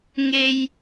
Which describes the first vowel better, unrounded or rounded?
unrounded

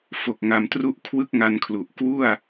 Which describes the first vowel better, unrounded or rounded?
rounded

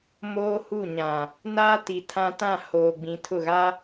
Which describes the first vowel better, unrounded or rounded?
rounded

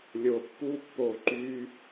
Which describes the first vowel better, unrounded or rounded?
rounded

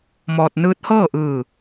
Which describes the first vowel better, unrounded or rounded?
rounded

